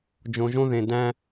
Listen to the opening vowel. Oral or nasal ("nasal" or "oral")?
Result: nasal